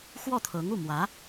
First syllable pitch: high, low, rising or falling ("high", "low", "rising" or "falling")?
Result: falling